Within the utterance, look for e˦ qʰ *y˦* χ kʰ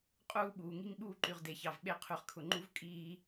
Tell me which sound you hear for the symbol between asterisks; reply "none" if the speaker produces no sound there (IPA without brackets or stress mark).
y˨